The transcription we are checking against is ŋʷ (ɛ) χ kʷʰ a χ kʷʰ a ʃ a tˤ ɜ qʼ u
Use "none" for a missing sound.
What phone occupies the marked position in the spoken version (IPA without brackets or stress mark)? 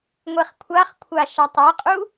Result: e